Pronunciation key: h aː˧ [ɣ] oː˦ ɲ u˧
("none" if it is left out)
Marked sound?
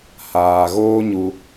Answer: ɣ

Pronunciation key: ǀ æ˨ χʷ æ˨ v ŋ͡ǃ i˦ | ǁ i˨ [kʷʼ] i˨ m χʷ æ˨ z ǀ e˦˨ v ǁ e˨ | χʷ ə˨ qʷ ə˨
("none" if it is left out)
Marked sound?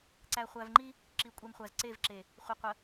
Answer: kʷʼ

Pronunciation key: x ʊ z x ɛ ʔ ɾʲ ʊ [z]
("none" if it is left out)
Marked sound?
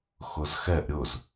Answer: z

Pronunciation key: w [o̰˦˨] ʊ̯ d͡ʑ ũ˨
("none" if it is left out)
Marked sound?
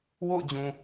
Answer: o̰˦˨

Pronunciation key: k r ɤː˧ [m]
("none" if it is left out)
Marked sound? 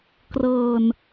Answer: n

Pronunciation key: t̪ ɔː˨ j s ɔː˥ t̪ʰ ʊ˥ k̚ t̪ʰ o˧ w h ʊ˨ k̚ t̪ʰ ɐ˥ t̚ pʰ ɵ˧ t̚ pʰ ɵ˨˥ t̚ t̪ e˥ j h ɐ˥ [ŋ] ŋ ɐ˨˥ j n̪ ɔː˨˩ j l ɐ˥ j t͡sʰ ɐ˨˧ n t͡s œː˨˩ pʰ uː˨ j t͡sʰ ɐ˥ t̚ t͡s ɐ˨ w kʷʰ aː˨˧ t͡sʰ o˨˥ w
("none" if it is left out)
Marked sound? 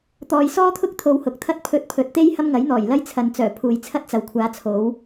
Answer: m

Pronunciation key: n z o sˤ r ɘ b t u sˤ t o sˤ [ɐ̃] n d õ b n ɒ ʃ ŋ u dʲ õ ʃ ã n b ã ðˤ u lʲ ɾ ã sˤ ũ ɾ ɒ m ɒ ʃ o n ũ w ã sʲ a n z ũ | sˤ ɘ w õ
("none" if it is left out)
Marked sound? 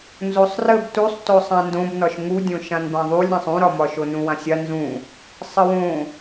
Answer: ã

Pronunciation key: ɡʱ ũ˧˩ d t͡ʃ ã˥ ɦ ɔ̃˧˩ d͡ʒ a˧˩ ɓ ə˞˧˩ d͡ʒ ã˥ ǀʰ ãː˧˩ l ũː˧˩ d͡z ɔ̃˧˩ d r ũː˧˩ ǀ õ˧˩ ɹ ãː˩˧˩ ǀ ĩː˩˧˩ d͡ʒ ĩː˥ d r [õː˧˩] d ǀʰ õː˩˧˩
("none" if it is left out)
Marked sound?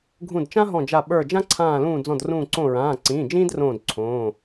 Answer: õː˧˩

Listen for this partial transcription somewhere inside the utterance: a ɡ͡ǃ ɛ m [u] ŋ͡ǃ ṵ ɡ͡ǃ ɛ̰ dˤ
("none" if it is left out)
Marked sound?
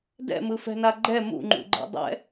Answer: ṵ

